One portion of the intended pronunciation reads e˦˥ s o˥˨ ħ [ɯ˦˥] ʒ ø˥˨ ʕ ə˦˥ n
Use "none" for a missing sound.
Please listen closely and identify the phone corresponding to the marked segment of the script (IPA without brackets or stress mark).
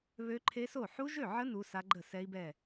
u˦˥